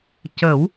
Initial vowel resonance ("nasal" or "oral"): oral